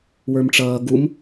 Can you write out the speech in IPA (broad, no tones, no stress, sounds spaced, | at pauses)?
w ə˞ m ʈ͡ʂ ʌː ɡ u m